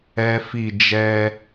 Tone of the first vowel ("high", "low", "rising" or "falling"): high